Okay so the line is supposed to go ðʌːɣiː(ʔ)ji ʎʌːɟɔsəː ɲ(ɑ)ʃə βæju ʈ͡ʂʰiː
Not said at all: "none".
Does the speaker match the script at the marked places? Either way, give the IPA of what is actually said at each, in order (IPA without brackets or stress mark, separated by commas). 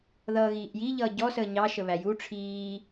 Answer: ʔ, ɑ